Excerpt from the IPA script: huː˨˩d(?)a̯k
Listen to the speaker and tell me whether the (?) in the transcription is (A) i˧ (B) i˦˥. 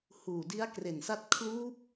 B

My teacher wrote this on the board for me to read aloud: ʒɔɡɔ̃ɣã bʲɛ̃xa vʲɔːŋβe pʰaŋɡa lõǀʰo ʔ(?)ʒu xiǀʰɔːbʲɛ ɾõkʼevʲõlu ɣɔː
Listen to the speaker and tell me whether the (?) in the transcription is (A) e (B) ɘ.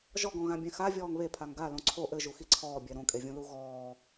B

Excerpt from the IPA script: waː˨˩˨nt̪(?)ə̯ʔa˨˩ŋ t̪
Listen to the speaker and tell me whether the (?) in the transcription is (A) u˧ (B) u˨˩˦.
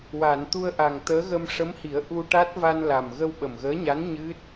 A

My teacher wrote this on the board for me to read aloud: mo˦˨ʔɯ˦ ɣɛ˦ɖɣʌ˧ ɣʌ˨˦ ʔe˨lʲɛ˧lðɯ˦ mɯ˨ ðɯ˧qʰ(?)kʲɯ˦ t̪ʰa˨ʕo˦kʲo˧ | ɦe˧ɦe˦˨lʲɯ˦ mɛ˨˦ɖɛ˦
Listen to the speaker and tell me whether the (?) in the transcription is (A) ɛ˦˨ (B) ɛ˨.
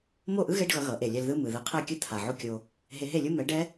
A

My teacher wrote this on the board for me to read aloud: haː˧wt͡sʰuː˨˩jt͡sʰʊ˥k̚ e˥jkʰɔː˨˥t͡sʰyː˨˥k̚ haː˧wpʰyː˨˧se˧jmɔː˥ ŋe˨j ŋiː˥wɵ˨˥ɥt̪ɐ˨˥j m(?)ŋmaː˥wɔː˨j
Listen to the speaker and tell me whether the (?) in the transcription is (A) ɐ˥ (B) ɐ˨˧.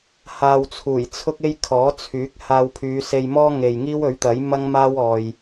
A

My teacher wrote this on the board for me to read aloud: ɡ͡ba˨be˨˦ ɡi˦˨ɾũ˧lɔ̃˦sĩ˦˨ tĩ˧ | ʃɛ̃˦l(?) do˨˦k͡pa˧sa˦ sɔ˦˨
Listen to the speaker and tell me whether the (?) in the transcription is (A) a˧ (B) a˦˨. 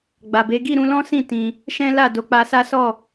B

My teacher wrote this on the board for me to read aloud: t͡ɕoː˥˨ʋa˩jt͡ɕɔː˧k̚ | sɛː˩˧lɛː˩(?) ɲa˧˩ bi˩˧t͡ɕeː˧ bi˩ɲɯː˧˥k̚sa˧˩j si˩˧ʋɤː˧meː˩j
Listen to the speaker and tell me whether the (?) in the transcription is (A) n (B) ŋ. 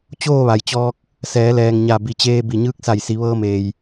B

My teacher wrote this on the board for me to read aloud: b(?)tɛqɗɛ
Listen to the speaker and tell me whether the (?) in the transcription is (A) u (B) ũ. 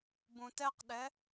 B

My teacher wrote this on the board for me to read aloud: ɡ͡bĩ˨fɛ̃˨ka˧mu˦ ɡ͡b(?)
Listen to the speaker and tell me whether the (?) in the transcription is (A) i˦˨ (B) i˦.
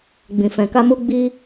B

